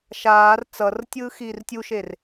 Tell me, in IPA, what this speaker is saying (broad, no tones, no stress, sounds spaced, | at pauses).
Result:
ʃ aː r t͡s ʌ r tʲ ɯː x iː r tʲ u ʃ e r